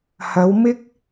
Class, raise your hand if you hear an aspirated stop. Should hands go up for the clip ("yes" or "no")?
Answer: no